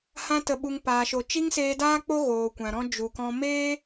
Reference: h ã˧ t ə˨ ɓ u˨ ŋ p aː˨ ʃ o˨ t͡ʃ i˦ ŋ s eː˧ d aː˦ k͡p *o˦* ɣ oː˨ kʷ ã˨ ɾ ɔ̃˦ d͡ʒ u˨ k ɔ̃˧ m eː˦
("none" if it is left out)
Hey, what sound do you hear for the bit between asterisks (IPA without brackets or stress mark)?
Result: o˦